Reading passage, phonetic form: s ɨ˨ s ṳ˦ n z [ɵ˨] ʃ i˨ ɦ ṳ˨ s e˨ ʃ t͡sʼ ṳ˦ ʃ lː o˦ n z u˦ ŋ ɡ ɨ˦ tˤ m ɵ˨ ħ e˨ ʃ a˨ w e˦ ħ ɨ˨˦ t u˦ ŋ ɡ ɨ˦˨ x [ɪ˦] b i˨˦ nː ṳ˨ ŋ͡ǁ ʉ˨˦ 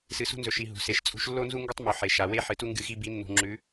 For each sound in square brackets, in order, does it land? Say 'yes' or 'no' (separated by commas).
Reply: yes, no